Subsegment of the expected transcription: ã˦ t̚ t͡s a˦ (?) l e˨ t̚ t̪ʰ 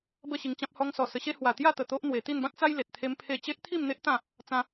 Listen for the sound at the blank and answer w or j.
j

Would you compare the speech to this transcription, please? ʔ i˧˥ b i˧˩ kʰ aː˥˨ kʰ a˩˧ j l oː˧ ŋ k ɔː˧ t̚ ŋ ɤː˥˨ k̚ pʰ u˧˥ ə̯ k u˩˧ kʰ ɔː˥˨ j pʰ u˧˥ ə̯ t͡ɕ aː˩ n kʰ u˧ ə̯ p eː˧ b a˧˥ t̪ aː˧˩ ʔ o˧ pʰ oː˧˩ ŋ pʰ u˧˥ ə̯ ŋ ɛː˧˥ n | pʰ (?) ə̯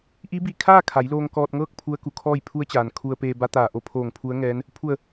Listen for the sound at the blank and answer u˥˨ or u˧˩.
u˧˩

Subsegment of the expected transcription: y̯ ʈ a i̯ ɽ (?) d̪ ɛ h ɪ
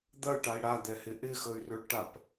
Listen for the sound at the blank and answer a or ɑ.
a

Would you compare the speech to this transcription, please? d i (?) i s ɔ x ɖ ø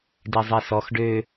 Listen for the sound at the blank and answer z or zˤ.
zˤ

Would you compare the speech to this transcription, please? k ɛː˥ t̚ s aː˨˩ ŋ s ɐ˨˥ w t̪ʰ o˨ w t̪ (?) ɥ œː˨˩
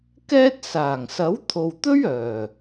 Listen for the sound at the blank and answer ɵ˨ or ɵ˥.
ɵ˥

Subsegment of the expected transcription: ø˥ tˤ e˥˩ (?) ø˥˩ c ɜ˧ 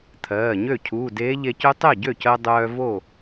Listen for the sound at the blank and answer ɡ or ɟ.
ɟ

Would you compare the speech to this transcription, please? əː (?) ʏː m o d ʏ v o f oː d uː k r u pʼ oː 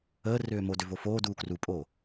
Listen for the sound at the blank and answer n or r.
r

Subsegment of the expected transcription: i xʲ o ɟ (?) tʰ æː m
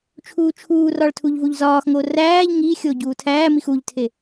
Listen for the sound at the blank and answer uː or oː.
uː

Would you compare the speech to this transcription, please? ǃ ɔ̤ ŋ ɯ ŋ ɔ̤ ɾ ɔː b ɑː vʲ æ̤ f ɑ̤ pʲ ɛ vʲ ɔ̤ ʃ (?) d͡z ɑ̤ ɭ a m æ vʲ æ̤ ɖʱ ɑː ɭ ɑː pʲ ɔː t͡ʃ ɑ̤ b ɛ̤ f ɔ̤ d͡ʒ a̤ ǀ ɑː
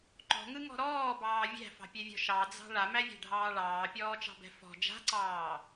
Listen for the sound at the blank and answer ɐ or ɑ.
ɑ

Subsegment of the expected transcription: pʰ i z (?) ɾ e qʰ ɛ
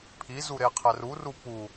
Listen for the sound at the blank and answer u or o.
u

